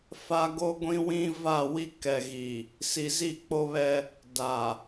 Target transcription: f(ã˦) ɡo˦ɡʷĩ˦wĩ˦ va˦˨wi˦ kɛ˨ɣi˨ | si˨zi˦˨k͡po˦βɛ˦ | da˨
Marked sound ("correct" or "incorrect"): incorrect